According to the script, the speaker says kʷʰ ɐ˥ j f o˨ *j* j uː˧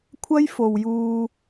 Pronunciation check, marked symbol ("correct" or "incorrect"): incorrect